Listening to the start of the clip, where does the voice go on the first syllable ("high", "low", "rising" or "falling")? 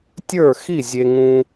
falling